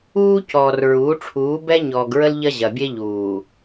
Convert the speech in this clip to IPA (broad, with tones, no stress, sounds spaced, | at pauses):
uː˦ c ɔː˨ r ɹ uː˨˦ ʈ͡ʂʰ uː˨˦ b ɛ˦ ɲ ɔː˨ ɡ ɹ ə˦ l ʎ ɐ˦ ʑ ɐ˨ bʲ e˦ ʎ uː˨